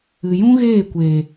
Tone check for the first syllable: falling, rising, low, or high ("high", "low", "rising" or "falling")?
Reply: low